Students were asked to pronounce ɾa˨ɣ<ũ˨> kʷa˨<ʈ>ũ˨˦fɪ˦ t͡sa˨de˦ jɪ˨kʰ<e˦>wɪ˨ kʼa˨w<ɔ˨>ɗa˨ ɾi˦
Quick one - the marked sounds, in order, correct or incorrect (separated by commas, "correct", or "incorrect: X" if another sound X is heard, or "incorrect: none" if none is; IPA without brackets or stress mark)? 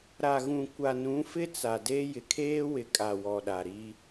correct, incorrect: n, incorrect: eː˦, correct